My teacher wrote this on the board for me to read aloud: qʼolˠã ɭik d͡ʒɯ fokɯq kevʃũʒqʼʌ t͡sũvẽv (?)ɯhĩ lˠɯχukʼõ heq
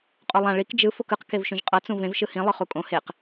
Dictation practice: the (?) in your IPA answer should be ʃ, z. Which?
ʃ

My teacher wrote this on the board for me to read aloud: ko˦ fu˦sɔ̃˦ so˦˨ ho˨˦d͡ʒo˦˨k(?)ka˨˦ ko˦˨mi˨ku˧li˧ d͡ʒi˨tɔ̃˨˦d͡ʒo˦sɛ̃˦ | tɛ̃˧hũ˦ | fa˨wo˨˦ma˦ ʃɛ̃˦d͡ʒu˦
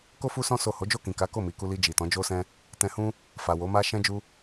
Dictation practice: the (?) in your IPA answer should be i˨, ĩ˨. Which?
ĩ˨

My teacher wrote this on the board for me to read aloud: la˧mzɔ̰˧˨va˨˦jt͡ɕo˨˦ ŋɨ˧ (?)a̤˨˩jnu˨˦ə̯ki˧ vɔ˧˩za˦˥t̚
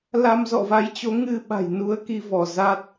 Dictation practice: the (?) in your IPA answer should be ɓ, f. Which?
ɓ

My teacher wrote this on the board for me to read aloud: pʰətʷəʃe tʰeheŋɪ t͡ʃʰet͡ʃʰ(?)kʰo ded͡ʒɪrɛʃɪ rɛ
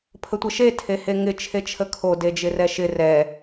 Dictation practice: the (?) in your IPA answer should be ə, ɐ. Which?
ə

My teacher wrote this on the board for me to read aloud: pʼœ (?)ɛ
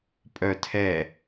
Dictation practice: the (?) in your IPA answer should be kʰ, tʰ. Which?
tʰ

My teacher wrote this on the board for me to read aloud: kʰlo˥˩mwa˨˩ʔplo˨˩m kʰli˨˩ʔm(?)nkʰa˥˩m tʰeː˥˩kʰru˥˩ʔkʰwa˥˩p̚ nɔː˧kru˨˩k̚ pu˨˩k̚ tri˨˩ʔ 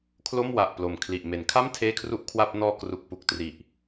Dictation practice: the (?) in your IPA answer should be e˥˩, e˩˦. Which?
e˩˦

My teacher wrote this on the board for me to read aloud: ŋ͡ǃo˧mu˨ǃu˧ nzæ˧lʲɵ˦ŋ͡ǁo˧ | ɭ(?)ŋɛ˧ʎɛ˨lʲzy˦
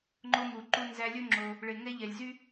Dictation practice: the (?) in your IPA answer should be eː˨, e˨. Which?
e˨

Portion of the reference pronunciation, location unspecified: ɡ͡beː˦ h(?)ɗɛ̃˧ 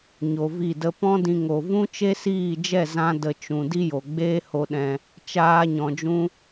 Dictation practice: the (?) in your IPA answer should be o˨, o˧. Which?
o˧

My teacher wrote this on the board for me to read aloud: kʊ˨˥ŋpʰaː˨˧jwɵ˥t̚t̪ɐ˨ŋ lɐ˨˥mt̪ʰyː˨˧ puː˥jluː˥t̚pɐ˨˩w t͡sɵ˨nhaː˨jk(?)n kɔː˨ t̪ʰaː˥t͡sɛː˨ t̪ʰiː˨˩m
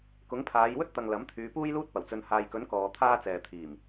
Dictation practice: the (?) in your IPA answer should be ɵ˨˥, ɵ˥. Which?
ɵ˨˥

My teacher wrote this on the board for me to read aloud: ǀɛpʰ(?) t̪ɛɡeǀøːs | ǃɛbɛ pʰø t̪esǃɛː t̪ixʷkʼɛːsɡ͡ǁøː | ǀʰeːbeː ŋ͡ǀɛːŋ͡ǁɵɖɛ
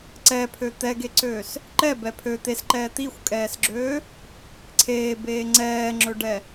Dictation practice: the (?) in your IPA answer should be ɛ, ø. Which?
ø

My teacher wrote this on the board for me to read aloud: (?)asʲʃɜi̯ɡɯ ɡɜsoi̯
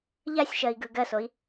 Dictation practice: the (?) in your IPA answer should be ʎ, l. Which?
ʎ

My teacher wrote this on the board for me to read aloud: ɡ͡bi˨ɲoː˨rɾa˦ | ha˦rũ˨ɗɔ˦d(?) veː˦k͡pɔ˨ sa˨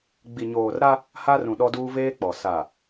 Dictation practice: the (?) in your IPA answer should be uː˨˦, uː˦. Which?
uː˦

